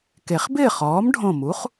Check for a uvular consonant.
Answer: present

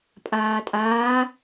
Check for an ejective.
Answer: present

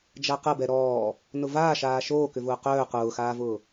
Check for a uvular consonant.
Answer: present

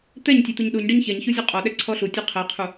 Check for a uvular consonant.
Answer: present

